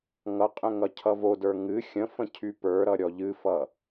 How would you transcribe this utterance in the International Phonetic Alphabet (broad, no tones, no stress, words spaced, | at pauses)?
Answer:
ŋʌqʼə̃ ŋʌcʰʌvodə˞ ŋɨ xʲə̃fə̃ cʰypə˞ɾʌ ɾʲɔʎɨfʌ